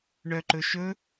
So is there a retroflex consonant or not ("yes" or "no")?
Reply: yes